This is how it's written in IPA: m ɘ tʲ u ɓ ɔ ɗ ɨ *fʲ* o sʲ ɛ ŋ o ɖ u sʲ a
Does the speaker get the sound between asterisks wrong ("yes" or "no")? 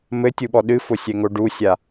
yes